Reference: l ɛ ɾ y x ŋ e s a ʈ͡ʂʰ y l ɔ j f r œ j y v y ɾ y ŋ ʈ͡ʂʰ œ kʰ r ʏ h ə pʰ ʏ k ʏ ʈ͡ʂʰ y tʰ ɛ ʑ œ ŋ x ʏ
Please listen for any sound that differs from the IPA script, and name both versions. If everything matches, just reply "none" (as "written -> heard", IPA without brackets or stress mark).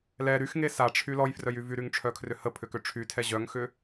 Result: none